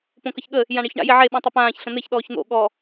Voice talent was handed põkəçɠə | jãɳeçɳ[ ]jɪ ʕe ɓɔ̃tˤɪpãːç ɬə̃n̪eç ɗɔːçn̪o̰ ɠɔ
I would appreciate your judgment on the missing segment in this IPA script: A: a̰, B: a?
A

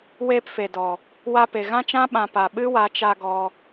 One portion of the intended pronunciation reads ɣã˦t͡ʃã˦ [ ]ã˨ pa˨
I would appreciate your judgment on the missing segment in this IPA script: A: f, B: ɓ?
B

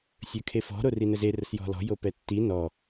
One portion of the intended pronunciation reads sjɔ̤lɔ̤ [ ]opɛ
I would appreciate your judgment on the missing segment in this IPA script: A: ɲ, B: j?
B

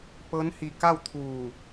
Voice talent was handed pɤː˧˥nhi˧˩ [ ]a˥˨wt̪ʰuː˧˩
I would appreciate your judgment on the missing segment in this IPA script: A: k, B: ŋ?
A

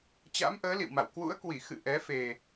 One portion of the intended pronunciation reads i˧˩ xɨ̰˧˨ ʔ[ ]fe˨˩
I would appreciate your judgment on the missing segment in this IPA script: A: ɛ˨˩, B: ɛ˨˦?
B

